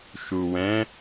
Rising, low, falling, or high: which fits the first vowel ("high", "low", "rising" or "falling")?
low